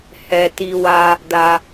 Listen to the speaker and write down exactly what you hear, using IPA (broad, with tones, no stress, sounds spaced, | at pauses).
h ɛ˧ t i˧ w a˧ | d a˧